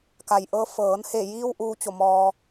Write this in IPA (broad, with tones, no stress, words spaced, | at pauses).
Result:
ka˩jʔɤː˧ fɤː˩˧nhe˧˩jiː˧w ʔuː˧˥t͡ɕo˧˩mɔː˧